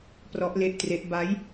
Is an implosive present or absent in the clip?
absent